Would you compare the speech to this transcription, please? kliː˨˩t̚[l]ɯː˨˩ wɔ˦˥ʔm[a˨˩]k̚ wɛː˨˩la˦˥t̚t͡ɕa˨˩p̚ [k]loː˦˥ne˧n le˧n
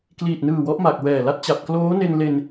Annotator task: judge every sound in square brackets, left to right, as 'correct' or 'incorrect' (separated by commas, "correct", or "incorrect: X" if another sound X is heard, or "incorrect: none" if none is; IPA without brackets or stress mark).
incorrect: n, correct, correct